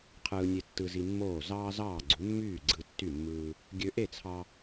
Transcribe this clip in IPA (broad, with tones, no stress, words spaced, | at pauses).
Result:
qʰɯː˧nʲe˧ tːɯ˧zi˧mːoː˥˩ zɑː˥zɑː˥˩ɡ͡ǀu˩˥ mːyː˥˩ ɡ͡ǀɯ˧ tːy˥˩mːɯː˧ | ɡʲø˧ʔe˥˩t͡sʰɑ˧